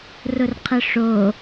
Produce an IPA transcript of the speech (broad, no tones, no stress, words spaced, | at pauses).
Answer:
rʊrqʰəʂo